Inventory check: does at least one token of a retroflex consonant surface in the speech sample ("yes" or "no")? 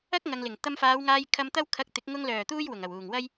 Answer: no